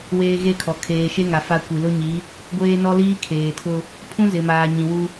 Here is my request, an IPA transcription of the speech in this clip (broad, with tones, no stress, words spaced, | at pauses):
weː˦ɣe˦kʰɔ˨ kʰeː˨ʃe˦ŋa˨ fa˦kʷi˨ lʊ˦ɲi˨˦ | ɡʷeː˦nɔ˦liː˦ kʰeː˨tʰʊ˦ | pʰũ˦zɪ˨maː˨ ɲĩ˨wu˦